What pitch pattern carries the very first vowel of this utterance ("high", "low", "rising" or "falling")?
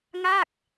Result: falling